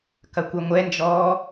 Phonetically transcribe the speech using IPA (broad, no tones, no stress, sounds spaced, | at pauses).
k ɐ kʷ œ ŋʷ ɛ n d͡ʒ ɔː